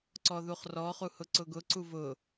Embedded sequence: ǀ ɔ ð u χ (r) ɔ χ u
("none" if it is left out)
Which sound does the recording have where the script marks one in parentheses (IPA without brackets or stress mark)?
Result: r